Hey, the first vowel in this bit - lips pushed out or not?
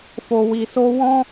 yes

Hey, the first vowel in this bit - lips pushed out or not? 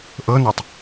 no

